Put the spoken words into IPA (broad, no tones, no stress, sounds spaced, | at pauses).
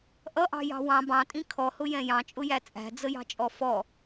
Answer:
ʔ ʌ ʔ ɑ̤ j ɑ̤ w ɑ̃ b ɑ̃ tʼ ĩ kʰ ɔ h ʊ j ɛ̃ j ɑ̃ t͡ʃʼ ʊ j æ t͡sʼ æ̤ d͡z ə j ɑ̤ t͡ʃʼ ɔ f ɔ